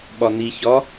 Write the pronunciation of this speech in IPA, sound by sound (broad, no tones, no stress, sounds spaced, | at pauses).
ɓ ɒ n i ç ɒ